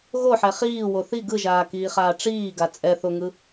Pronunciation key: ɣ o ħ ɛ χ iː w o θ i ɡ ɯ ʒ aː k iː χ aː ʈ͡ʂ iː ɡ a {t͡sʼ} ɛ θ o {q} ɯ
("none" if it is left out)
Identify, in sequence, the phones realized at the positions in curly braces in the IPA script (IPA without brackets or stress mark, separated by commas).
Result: t͡sʼ, ŋ